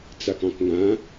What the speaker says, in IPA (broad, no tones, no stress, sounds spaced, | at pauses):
t͡s a k ɑ̃ k ŋ ã